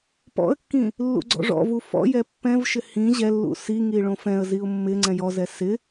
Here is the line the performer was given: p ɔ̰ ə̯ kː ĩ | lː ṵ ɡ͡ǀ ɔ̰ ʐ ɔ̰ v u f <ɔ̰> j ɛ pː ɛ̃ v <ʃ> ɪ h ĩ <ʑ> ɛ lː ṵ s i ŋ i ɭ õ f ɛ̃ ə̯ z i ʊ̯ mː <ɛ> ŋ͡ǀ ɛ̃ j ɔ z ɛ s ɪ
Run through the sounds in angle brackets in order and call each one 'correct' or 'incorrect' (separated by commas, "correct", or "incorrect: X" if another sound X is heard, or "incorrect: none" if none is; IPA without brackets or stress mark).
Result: correct, correct, correct, incorrect: ɪ